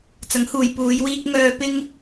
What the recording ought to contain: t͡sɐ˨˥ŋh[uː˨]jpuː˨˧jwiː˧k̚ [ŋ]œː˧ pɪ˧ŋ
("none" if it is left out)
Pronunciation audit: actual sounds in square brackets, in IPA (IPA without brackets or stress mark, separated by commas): uː˨, ŋ